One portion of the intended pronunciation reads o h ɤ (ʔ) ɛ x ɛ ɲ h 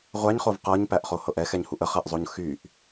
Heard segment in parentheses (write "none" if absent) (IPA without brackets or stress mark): ʔ